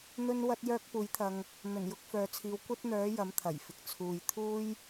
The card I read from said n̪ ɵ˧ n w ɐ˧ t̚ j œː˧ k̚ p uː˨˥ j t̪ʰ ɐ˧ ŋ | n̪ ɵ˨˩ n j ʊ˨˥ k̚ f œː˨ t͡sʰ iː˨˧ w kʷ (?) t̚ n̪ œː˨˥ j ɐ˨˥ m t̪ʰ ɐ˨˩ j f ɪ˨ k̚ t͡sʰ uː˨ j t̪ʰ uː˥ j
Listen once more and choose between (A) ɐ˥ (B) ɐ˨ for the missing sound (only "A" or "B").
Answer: A